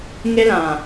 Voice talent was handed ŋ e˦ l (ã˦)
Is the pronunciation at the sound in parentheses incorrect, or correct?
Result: incorrect: ã˨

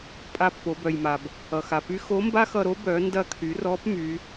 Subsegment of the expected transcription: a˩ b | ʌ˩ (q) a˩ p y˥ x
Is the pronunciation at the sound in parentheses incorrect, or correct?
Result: incorrect: x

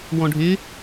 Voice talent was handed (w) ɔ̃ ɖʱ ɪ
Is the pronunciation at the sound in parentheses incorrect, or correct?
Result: correct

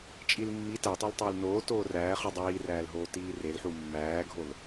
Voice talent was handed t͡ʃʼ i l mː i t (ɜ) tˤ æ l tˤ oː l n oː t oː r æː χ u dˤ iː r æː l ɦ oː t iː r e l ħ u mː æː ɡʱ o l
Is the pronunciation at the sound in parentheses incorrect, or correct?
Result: incorrect: æ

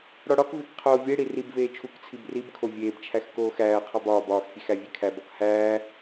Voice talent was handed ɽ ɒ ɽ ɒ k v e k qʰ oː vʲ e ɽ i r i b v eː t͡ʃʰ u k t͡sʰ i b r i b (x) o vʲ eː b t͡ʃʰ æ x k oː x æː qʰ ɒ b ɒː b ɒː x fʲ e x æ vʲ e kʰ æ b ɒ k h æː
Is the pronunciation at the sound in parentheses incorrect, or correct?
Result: incorrect: kʰ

